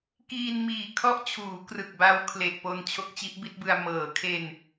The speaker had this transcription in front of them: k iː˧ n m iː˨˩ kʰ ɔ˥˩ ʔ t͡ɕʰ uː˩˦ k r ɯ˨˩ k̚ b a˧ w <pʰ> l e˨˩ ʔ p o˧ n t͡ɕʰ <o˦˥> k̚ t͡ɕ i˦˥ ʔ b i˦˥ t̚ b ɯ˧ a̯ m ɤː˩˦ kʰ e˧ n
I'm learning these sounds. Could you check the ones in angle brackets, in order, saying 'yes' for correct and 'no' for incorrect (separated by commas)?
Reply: no, yes